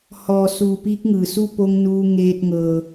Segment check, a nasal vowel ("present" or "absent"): absent